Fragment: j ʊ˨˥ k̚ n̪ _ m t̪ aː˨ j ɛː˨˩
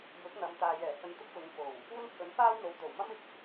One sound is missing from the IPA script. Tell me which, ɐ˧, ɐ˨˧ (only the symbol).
ɐ˨˧